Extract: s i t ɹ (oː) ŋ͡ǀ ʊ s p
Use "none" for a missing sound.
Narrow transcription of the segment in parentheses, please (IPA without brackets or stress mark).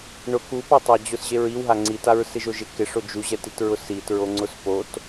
o